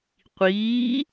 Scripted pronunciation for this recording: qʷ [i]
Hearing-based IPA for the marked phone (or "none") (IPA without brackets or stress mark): iː